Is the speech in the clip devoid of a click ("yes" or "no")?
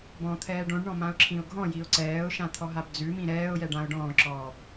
no